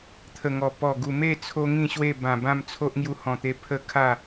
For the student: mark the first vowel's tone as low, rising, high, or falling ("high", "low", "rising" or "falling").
low